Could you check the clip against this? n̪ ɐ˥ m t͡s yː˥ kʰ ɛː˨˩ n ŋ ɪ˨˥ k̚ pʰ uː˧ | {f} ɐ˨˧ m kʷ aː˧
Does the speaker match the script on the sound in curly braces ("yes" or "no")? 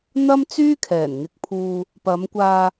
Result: no